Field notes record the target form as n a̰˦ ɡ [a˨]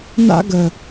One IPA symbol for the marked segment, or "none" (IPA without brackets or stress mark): ə˨